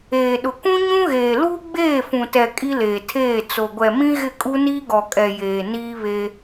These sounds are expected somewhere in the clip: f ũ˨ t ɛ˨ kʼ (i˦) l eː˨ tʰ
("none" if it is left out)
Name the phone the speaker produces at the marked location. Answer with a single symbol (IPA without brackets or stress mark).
i˦